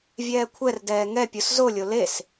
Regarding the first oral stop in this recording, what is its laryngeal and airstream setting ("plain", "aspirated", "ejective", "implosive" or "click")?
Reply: aspirated